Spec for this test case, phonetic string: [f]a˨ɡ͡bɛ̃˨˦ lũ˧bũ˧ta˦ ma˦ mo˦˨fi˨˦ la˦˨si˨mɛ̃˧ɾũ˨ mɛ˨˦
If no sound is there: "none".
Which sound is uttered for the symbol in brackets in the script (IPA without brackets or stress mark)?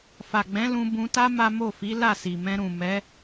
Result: f